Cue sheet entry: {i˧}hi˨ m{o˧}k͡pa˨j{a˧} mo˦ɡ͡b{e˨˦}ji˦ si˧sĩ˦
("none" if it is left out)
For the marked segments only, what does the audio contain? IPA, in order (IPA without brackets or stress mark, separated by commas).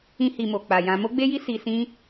ĩ˧, o˨, ã˧, e˦